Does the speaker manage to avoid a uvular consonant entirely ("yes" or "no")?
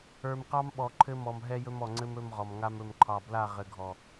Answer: no